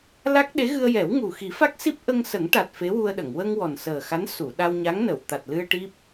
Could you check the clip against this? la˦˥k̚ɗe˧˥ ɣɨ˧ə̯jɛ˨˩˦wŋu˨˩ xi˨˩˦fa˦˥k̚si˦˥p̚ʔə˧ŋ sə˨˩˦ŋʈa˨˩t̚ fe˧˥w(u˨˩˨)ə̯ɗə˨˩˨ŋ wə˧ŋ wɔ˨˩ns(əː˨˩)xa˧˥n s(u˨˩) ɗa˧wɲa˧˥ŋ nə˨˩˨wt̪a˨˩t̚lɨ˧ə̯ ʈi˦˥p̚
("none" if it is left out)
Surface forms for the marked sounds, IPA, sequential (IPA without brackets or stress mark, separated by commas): u˧, əː˨˩, u˨˩˨